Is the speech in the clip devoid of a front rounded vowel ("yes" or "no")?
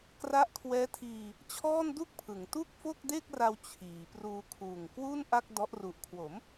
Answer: yes